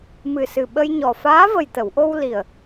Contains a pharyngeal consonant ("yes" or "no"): no